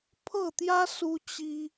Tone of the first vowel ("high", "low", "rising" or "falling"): falling